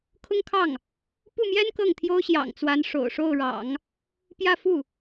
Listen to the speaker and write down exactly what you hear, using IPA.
kʰ ʊ˥ ŋ kʰ ɑ˥˩ ŋ | p u˥˩ m j ɛ˥ n k ɤ˥˩ ŋ t̪ʰ j o˥ ʊ̯ ɕ j ɑ̰˨˩ ŋ t͡s w a˧˥ n ʂ o̰˨˩ ʊ̯ ʂ o˥˩ ʊ̯ ɻ ɑ̰˨˩˦ ŋ | p j ä˥˧ f u˥˩

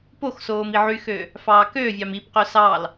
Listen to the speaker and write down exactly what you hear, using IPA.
p o x s oː m i ʕ y x øː | f ɑː k øː vʲ ɑ m i p q ø s ɑː l

